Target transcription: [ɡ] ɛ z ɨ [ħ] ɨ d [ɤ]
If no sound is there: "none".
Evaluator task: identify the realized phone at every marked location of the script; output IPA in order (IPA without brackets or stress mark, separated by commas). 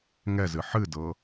ŋ, ħ, ɤ